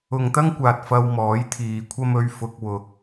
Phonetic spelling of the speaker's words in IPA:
ʊ˨ ŋ t̪ ɐ˥ ŋ kʷ aː˨ t̚ f ɐ˧ w m ɔː˨˥ j t̪ʰ iː˨ kʷʰ ɐ˥ m ɵ˧ ɥ f ʊ˧ k̚ w ʊ˧ k̚

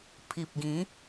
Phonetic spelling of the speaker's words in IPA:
pʰ i˨ p̚ ɡ ĩ˨˦

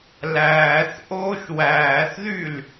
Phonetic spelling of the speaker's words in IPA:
l æː θ ʔ oː ʃ w æː θ ð y l

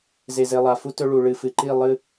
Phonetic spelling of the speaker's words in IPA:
z e˨ z e˨ lˠ a˨ f u˦ t ɵ˦ ɭ u˨ ɭ ɨ˨ f ɨ˨ ǃ i˦˨ lˠ ɨ˦

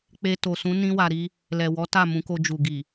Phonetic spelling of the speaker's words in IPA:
k͡p e˧ t o˨ s ũ˨˦ n ĩ˦ w a˧ ɾ i˧ | l ɛ˨ w ɔ˨˦ t a˦˨ m ũ˨˦ k o˧ d͡ʒ u˨ ɡ i˨

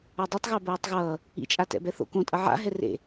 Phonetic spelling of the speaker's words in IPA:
a dˤ e tˤ ɣ a b oː tˤ ɣ ʌː | ḭ t͡ʃʼ a t ɛ̰ b ɛ θ o̰ k õ tʼ ʌ ʕ a̰ ɦ ɛ r ḛ

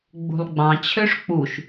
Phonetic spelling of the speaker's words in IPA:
ɡ͡b ṳ lˠ ɡ͡b ɑ̃ t͡ɕʰ ø ʂ k͡p u ʃ

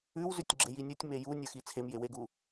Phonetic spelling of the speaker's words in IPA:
ʉ w z ʉ tʲ ɡ͡ǁ e j i nʲ u tʲ m e j u nʲ ə˞ x i t͡sʰ e m j e w e ɡ u

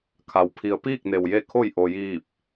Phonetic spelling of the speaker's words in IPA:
kʰ a˩ w pʰ i˩˧ ə̯ p iː˥˨ k̚ n e˩ w j e˧˩ kʰ o˧˩ j ʔ o˩ j iː˧˩ p̚

